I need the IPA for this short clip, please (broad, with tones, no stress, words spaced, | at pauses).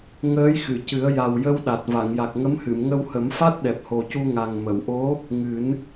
ŋəː˧˥jxɨ˨˩˨cɨ˨˩˦ə̯ ja˨˩wjə˧wɗa˨˩t̚ va˨˩˨ŋja˨˩k̚ŋə˧˥m hɨ˨˩˨mŋə˧whə˨˩˦mfa˦˥t̚ ɗɛ˨˩p̚ho˨˩cu˧ ŋa˨˩ŋ mə˨˩˨wʔo˧˥ | ŋɨ˨˩˦n